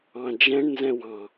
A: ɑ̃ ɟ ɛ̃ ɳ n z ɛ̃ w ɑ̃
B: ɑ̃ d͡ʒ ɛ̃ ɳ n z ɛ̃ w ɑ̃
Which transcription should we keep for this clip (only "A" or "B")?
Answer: B